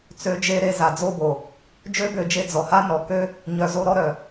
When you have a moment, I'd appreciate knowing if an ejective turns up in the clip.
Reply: no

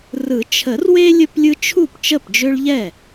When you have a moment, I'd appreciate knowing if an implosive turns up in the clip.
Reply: no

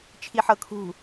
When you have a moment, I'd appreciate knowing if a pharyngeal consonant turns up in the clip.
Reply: yes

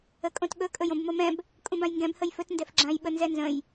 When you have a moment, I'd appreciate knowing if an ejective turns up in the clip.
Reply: yes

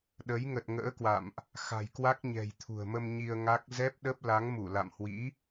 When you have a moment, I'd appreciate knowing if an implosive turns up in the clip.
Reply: yes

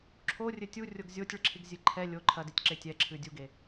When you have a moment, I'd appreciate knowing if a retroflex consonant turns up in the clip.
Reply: yes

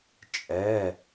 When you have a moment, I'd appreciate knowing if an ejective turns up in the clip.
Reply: yes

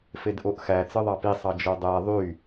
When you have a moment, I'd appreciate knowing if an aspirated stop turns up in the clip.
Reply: no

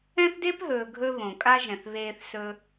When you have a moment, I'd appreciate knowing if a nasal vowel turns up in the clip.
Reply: yes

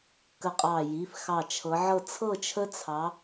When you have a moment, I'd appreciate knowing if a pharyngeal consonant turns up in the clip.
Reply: yes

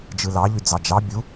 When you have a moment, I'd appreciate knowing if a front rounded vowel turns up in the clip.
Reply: yes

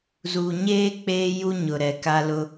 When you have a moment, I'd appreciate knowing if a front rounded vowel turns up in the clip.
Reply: no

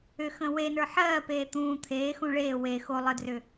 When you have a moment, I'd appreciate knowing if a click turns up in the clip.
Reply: no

